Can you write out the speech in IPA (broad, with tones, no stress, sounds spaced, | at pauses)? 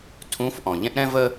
tʰ ũ˧˥ f ʔ ɔ̃˩ ʎ ɛ̃˥ ʔ ɾ ɛ̃˥ v ə˥